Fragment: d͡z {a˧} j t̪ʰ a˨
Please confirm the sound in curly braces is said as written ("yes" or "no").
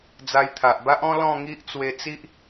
yes